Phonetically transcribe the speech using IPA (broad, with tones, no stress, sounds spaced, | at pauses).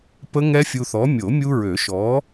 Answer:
p ə˦˥ ŋ ɛ˦˥ fʲ u˧ θ ɔ˨˥ mʲ o˨˩˦ mʲ u˧ ɹ ø˨˩˦ ʃ ɔ˨˥